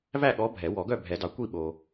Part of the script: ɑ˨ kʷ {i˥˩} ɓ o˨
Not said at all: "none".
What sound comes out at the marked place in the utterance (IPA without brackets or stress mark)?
i˥˩